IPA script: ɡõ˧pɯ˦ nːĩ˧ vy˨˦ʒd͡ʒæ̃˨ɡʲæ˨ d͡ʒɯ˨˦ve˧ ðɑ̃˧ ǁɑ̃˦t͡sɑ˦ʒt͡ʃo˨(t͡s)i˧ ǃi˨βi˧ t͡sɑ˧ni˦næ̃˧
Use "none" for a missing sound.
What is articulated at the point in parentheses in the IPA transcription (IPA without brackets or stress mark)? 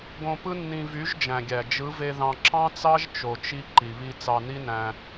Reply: t͡ʃ